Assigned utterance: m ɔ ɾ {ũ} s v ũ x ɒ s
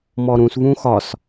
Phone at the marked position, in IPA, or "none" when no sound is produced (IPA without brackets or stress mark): ũ